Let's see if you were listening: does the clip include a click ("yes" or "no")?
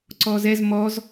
yes